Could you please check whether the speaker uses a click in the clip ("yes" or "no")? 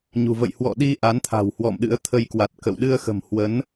no